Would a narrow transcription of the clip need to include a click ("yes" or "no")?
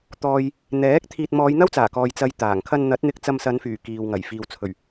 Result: no